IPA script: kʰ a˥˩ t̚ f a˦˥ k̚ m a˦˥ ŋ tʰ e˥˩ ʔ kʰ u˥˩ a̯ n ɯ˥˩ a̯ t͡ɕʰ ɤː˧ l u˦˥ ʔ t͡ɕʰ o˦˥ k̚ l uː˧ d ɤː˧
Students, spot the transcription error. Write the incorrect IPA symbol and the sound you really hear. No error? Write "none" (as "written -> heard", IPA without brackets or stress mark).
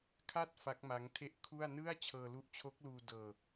none